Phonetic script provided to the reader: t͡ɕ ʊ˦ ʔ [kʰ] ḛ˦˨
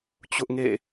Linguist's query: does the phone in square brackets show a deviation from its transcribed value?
yes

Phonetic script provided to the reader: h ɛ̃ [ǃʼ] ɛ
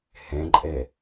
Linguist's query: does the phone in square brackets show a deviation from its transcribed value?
no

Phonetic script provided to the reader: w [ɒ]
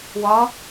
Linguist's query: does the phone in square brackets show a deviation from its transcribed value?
no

